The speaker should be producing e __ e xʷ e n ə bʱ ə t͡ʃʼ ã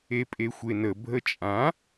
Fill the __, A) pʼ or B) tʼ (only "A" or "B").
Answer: A